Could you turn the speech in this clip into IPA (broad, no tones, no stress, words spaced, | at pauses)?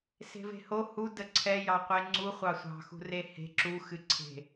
se̤ve̤ho hu dəǀʰɛ jɑqʷeŋ͡ǀu χʷɑsʷɑ̤xṳ rehe̤ ǁuxɨ ǀʰe̤